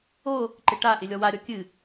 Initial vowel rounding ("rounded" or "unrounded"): rounded